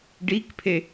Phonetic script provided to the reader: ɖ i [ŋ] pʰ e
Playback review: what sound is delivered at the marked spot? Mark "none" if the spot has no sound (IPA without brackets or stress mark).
k